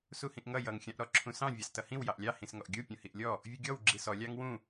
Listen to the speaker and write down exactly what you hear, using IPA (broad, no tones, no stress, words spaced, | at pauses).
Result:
suhĩʔŋʌ jʌŋ xʲɑ̃ʔɾɔǁʰũsɑ̃ vʲɑstʌhĩw jɑʔlʲɑ hĩsŋɔʔɡʲu pʲũhiʔlʲɔ | vʲuɡʲɔw ɡ͡ǁisɔ lʲɑŋwũ